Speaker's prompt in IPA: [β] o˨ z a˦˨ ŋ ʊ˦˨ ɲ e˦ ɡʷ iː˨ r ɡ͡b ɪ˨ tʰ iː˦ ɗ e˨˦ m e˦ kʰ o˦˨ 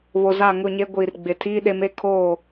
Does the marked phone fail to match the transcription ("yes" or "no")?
no